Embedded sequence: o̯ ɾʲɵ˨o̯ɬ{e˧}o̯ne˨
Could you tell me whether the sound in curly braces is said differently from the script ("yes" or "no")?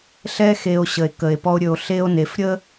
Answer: no